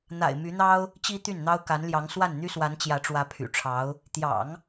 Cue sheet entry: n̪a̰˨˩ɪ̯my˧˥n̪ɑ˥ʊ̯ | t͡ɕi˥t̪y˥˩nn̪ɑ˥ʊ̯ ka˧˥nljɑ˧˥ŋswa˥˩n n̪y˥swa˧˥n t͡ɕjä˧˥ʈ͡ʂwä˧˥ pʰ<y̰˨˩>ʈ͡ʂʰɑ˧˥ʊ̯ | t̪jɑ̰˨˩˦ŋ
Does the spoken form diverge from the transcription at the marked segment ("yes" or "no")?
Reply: no